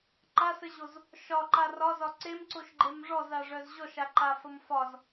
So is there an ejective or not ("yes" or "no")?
no